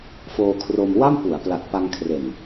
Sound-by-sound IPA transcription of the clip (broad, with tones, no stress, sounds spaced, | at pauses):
f oː˧ kʰ r o˧ m w a˥˩ m p u˩˦ a̯ p l a˨˩ t̚ p a˧ ŋ kʰ r e˨˩ n